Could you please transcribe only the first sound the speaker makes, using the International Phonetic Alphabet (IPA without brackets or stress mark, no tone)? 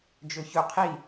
d͡ʒ